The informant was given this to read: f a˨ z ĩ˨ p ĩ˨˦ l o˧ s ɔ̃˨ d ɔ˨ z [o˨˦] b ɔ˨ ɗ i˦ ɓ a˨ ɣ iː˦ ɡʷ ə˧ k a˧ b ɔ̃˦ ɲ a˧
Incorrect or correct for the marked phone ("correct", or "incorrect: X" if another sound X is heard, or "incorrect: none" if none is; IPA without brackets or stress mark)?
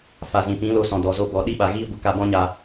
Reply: incorrect: o˧